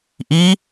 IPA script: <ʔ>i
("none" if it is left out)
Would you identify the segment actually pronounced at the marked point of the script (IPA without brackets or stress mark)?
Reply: ʔ